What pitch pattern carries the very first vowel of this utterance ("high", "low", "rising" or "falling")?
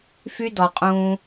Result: high